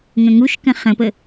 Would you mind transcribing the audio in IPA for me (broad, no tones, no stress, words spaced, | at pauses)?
ŋə̃ŋuʃkə̃ χə̃pə